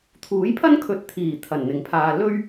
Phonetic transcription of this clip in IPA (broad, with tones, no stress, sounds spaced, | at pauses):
t̪ʰ uː˨˥ j pʰ ɐ˥ n kʰ ɵ˨ t̚ t̪ʰ iː˨˩ t̪ʰ ɐ˨˩ n n̪ ɪ˨ ŋ pʰ aː˧ l ɵ˥ ɥ